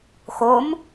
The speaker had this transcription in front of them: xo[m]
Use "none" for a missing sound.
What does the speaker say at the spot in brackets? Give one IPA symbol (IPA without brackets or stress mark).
m